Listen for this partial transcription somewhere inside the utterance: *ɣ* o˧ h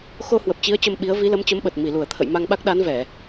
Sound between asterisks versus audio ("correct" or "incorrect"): incorrect